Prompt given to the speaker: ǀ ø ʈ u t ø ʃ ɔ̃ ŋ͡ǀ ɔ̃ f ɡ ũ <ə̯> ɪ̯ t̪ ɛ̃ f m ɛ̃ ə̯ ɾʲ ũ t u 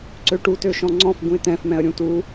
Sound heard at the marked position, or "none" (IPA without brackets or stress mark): none